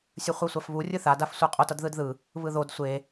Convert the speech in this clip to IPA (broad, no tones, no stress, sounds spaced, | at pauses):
sʲ ɯ χʷ ɛ sʷ a f β u rʲ ɯ θ a d a f sʷ ɛ qʼ o t ʌ d ð ɯ d ð ɯ | β ɯ ð o d sʷ e